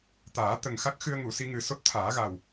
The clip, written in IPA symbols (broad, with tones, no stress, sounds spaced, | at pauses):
t̪ aː˨˩˦ t̪ ə˨˩ ŋ x a˦˥ k̚ x ɨ˧ ə̯ ŋ u˨˩˨ s i˧ ŋ ɨ˨˩ s o˦˥ t̚ t̪ʰ aː˨˩˦ ɣ a˨˩ w